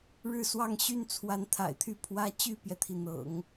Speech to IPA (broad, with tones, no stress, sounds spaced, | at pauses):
ɻ ɻ̩˥˧ s w ɑ˥˧ ŋ ɕ y˥˩ n t͡sʰ w a˧˥ n t̪ʰ a̰˨˩ ɪ̯ t̪ʰ y˥˩ pʰ w ä˥ t͡ɕ y˥˩ p j ɛ˩ t̪ʰ i˩ n̪ ɤ̰˨˩˦ ŋ